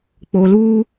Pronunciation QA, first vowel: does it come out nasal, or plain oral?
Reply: oral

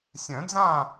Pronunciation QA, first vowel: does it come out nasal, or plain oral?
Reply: nasal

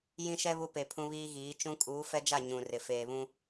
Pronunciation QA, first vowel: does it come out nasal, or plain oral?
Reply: nasal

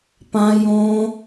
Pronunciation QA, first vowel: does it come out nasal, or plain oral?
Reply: nasal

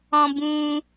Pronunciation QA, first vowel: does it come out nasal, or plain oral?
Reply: nasal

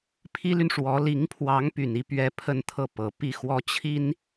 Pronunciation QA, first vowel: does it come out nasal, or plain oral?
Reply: oral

